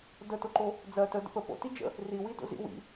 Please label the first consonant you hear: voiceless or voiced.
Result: voiced